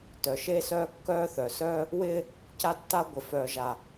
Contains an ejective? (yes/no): no